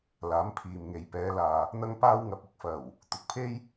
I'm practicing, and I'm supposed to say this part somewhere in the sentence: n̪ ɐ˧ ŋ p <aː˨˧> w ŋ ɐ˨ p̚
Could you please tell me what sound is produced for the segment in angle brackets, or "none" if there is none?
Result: aː˧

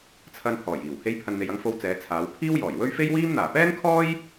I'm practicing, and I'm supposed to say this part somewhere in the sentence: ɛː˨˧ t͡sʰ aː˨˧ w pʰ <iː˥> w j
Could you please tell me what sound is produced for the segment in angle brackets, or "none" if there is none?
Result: iː˥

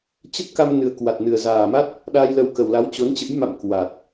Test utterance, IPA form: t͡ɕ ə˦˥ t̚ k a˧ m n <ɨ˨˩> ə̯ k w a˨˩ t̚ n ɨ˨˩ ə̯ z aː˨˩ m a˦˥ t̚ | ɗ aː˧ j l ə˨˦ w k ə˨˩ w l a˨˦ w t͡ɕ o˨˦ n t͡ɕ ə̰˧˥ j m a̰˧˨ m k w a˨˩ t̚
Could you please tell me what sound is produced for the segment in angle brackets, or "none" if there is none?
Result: ɨ˨˩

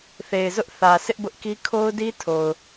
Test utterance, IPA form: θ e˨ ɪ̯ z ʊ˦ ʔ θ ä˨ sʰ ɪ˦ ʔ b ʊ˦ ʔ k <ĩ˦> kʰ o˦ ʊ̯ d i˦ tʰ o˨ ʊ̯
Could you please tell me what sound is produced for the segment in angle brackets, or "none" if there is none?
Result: i˦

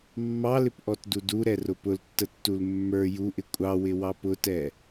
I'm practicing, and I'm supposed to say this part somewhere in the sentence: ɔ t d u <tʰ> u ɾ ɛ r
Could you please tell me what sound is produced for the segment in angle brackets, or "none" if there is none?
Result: d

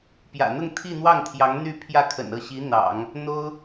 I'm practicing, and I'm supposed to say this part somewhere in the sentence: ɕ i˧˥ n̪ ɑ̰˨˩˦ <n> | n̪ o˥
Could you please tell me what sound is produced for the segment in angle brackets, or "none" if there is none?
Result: ŋ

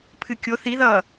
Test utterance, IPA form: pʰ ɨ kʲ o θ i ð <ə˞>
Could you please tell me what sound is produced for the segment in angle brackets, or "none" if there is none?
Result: ʌ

